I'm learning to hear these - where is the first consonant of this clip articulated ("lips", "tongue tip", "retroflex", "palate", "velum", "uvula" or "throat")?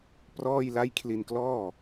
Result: lips